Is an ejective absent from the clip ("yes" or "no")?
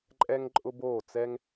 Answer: no